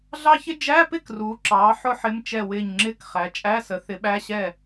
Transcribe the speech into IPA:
ɮɑ˥çɪ˥ d͡ʒæ˧˥˧pɪ˥˩k ruː˩˥ǁɑː˩˥ ħʊ˥ħɪ˧˥˧m t͡ʃɛ˥˩wɪː˥˩ɲŋ͡ǁɪː˥k χæ˩˥t͡ʃʼæ˧˥˧sə˩˥ θɪ˩˥ɓæ˧˥˧ɕɛ˥˩

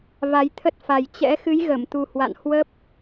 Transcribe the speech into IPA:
va˨˦jt̪ʰə˦˥t̚fa˨˩j t͡ɕɛ̰˧˥ xɨ˨˦jɣə˧˩mt̪u˨˩ hwa̰˧˨n hwə˦˥p̚

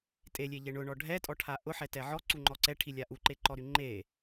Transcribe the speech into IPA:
tʼelʲeʎe ɳʊɳɔ ɖʱɛtʼɔʈʰa ʔʊħɛtɛ ʕɔǀuŋ͡ǃɔ ǀɛʈʰilʲa ʔuǃeǃɔɾy ŋ͡ǃe

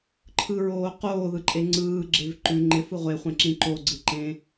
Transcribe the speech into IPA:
ǃʰɯɹoː qoːðɯǃʼe ŋ͡ǀɯːɡ͡ǁev ǃʉ ŋ͡ǃɪfɯ ʁʷeχʷẽǁĩ ǃoɡ͡ǀɯǃẽ

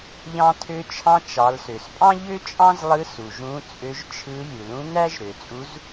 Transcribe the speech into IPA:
ʎɑ̃˧tʰø˧t͡ʃʰɑ̃˧ t͡ʃɑ˩˧lsø˩spʼɑ̃˥ ʎø˥t͡ʃʼɑ̃˥zlˠɯ˧˥su˩ ʒũ˧˥t͡sʼø˧˥ʒt͡ʃʰɯ˧˥ lʲu˩lũ˧˥ næ˥ʒɾø˩t͡sʼu˧˥z

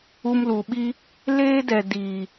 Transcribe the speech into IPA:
u˧mlu˨ɓi˦ | leː˦dɛ˨diː˨

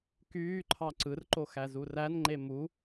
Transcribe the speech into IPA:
kyːǃʰɑ ǀɯrǃo xæzurænŋ͡ǃe mu

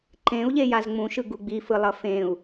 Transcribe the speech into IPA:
ǃẽu̯ʎejaz ŋ͡mũʃɯɡu ɡ͡bifɯlˠʌ fẽu̯

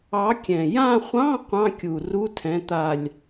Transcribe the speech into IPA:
ɑ˨˥kʲɛ̃˨˩ jã˦˨χʷɑ̃˧˥˧ qʷɑ̃˧˥˧kʲu˨˩ ru˧˥˧tʰɛ̃˨˥t̪a˦˨lʲ

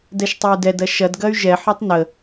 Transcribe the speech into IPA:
dɛʃtˤoy̯dɛdɐ ʃɐdɡɐy̯ ʒɛħɔtˤ nə

